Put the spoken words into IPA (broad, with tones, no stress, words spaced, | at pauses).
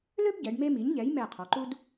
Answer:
lø˥bɟɛ˩˧ɖ me˧mi˩˧ɲʎɛ˩˧j mɛ˧˩ qʰɔ˩˧ǃu˥d